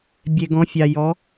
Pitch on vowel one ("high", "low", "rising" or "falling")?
low